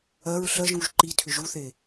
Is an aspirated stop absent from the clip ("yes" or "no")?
no